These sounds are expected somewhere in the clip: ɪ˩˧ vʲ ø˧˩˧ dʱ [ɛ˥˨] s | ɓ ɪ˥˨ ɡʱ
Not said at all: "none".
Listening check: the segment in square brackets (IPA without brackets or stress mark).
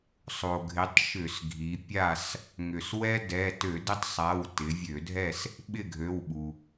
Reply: ɛ˥˨